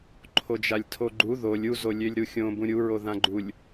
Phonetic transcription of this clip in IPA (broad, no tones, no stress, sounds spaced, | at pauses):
ǃʰ o d͡ʒ a lʲ tʰ o ɡ͡ǃ u ð o lʲ u z o lʲ ø lʲ ɾ u xʲ õ b ũ ɾʲ u ɹ o ð ã ɡ͡ǃ u lʲ